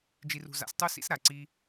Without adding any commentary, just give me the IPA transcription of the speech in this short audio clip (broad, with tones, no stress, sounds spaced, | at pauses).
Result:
d͡ʒ i˧ r ṳ˧ z a̰˧ s tˤ u˦ s ḭ˦ s ɾ a˨ ǀ i˦